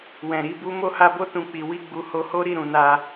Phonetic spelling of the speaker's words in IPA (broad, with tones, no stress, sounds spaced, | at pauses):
w ɛ̃˨ ɾ i˧ b u˦ m o˦˨ h a˧ b o˦ t ũ˧ k͡p i˨ w i˧ ɡ͡b u˨ h o˨˦ h o˦ ɾ i˦˨ ɾ ũ˨ n a˧